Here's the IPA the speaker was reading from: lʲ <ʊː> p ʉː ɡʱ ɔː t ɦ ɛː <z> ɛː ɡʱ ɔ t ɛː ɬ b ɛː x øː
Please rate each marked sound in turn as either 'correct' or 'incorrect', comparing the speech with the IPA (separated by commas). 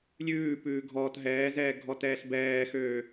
incorrect, correct